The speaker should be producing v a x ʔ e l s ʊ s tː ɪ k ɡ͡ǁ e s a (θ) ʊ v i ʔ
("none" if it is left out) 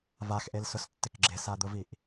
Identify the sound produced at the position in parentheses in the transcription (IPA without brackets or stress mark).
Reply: d̪